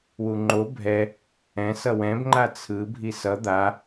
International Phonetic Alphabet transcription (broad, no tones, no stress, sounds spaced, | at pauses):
w u ŋ͡ǃ o bʱ ɛ | ɛ̃ s ʌ w ɛ̃ b ŋ͡ǃ a t͡sʰ ɯ bʱ i s ʌ d̪ a